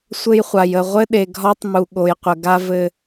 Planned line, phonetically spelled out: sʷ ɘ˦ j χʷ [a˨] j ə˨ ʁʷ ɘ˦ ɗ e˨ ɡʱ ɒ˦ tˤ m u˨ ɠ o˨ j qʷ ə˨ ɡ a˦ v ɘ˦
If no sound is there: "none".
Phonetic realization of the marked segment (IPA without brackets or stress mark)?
a˨